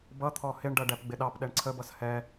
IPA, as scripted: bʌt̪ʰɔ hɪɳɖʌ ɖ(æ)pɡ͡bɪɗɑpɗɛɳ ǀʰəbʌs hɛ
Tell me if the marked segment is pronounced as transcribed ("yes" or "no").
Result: yes